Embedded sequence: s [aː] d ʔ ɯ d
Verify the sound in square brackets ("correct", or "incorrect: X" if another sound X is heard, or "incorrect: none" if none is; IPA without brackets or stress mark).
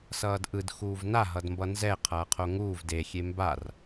incorrect: ʌː